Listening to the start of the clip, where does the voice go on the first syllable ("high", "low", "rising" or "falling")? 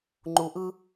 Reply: low